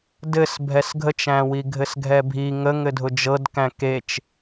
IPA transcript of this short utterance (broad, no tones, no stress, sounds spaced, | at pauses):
d ɘ s bʱ ɛ s ɡʱ ə t͡ʃ æ̃ w i ɡʱ ɘ s ɡʱ ɛ bʱ i ŋ ə ŋ ɘ dʱ ʊ d͡ʒ ɤ d k æ̃ k e t͡ʃ